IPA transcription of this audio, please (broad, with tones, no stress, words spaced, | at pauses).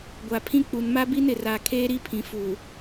ɡʷa˨pʰĩ˦k͡pu˨n ma˦bi˦n ɪ˨ra˨ kʰeː˦ɾi˦pʰĩ˨ fu˨